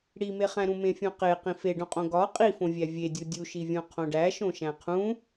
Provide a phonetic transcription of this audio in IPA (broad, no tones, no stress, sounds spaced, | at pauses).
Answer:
ɽ i m e χ æ̃ ɾ ũ m ẽ fʲ õ q e q ĩ f e ɖ õ qʼ õ ɡ ɒ qʼ i f õ vʲ æ vʲ e dʲ u dʲ u ʃ i vʲ õ qʰ õ ɖ æ ʃ õ ʃ æ̃ qʰ ũ